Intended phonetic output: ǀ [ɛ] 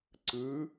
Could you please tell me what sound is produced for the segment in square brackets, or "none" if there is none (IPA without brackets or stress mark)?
ɨ